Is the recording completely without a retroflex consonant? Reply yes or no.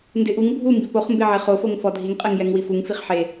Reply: yes